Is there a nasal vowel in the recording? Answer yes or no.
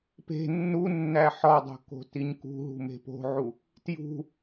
no